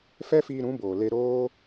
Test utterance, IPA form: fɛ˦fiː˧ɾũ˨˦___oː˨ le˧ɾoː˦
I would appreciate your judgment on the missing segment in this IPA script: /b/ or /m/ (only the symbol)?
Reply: b